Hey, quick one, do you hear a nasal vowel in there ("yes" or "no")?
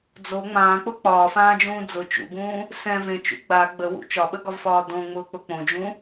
yes